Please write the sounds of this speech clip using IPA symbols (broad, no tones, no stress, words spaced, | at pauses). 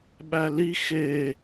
ɓæli xe